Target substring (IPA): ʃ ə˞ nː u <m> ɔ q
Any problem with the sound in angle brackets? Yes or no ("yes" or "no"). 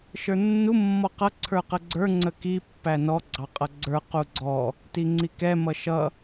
yes